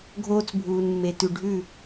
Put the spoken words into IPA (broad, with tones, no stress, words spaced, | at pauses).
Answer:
ɡʱoː˦t͡sbʱuː˨nmːe˨ tʉ˨ɖʱʉ˦˨